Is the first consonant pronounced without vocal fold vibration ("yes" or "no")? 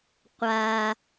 yes